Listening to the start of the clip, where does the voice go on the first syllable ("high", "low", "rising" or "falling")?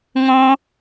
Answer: high